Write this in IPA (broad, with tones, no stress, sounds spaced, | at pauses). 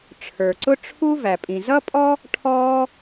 ʈ͡ʂʰ ə˞˩ ǀ ʊ˥ ʈ͡ʂʰ u˥ v æ˩ pʼ ĩ˩ z ʌ˥ pʼ ɔ˥ | ʈʰ ɔː˥